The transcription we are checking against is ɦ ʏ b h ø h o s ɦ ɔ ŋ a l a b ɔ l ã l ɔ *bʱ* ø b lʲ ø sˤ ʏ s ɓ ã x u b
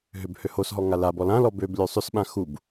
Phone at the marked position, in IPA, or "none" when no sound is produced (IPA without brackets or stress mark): b